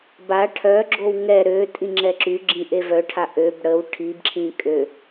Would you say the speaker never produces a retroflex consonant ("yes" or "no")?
no